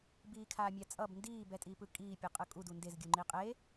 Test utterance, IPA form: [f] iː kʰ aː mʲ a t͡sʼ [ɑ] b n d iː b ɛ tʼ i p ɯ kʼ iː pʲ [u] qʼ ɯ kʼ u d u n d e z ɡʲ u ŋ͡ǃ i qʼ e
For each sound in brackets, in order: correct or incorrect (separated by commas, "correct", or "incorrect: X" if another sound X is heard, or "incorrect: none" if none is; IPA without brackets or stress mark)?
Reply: incorrect: b, incorrect: ʌ, incorrect: ɯ